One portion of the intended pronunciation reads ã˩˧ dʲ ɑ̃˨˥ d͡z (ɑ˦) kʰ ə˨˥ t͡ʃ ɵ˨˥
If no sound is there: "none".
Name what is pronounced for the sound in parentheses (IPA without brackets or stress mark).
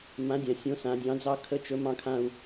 ɑ˦